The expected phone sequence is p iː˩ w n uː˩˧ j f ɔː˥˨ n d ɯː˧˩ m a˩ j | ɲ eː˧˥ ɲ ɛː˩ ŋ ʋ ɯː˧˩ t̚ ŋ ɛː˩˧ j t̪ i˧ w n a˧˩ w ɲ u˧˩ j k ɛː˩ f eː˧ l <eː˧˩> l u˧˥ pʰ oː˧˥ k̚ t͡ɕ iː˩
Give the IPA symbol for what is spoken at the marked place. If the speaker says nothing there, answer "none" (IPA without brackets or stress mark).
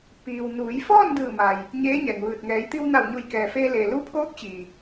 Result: eː˩